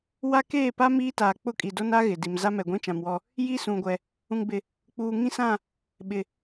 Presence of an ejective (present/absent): present